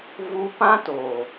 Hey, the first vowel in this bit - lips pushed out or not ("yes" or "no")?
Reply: yes